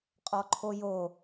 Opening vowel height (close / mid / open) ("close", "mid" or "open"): mid